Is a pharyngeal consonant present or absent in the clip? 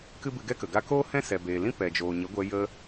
absent